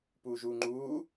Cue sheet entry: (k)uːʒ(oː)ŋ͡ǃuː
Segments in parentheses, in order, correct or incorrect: incorrect: p, incorrect: uː

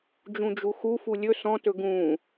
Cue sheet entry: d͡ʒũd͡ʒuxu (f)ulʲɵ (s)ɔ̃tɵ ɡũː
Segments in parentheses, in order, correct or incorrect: correct, correct

